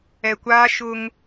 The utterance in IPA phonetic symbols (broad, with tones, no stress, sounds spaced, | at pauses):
ɛ˨ kʷ aː˦ ʃ ʊ˦ ŋ